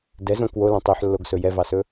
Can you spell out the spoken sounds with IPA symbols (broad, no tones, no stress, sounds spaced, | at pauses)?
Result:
d ɛ z õ k w o l ɔ̃ tˤ œ ħ lː o ɡ s ɵ j ɛ v ɑ s ɵ